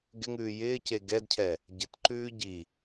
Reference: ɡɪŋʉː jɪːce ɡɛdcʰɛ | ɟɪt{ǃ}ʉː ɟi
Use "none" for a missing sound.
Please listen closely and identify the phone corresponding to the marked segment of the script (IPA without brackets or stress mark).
ǃ